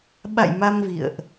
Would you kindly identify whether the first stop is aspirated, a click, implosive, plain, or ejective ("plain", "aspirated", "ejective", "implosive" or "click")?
implosive